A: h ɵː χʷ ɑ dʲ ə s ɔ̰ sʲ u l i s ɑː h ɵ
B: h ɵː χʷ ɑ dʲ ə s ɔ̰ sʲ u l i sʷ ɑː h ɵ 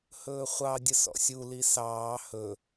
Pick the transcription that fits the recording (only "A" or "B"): A